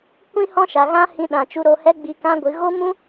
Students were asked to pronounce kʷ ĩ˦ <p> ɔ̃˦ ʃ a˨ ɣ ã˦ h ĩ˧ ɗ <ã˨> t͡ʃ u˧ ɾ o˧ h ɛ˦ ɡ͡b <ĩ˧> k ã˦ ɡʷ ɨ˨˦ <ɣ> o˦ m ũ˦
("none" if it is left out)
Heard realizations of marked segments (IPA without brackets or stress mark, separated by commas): h, ã˨, i˧, ɣ